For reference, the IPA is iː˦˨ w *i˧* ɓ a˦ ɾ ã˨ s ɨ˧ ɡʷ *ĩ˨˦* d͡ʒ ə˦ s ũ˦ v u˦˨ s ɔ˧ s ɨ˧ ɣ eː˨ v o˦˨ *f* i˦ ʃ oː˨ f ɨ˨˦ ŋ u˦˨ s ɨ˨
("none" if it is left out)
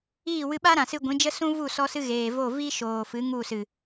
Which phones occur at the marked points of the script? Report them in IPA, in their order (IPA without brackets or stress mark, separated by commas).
ɨ˧, ĩ˨˦, v